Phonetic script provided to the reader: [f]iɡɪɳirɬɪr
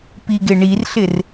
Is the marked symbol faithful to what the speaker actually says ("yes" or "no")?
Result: no